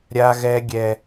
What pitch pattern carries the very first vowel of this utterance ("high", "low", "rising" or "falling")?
high